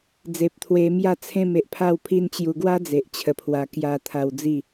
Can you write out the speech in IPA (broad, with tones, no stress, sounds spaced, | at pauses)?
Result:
d͡z e˨ p̚ t̪ʰ w e˧ m j a˥˧ t͡sʰ ẽ˥˧ m e˨ ʔ pʰ a˥˧ w pʰ i˦ n t͡ɕ j u˧ ɡ w a˦ d͡z e˨ ʔ t͡ɕʰ ə˧ pʰ w a˧ k j a˧ t̪ʰ a˧ w d͡z i˥˧